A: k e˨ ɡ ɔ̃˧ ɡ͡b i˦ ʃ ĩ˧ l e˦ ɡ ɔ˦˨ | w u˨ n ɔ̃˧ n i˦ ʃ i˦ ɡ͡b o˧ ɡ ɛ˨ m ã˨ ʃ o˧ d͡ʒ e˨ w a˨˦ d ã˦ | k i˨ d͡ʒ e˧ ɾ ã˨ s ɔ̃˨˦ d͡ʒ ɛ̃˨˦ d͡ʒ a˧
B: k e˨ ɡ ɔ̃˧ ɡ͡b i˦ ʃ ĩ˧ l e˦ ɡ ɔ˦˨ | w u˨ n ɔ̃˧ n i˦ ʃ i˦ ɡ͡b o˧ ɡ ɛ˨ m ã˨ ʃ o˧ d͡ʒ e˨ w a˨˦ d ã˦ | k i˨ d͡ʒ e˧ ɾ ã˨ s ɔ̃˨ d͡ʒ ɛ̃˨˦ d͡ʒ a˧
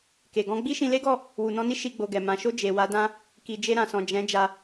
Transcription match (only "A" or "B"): B